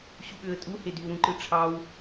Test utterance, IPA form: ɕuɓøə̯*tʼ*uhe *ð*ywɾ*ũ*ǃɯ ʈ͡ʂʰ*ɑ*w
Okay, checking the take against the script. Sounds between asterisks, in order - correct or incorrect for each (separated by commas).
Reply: correct, incorrect, correct, correct